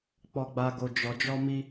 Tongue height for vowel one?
mid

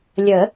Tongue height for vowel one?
mid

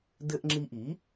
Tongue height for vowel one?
mid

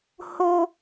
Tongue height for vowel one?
mid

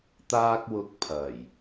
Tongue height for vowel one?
low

